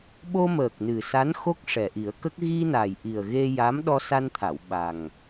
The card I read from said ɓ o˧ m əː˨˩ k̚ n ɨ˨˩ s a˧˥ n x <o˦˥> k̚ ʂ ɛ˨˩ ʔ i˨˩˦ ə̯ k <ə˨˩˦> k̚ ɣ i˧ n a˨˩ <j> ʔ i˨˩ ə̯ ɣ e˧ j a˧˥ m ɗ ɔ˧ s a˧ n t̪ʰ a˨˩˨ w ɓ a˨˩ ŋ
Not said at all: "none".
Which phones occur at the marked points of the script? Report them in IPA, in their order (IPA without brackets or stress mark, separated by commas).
o˦˥, ə˦˥, j